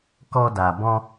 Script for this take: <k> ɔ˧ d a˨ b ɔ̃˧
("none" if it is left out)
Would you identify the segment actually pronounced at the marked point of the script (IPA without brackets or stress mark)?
k